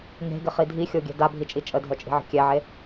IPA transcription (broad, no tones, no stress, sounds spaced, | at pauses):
ŋ e̤ ɡ ɪ χ i dʱ i xʲ o ɡʲ ɛ̤ d a bʱ i t͡ʃʼ i t͡ʃʼ ə dʱ œ t͡ʃʼ i̤ ʕ ə̤ kʲ ɛ ʕ e